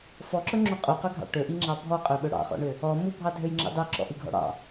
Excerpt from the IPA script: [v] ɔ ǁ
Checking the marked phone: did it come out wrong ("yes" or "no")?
yes